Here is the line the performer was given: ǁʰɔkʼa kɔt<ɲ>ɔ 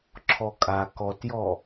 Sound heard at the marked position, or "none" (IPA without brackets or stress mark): j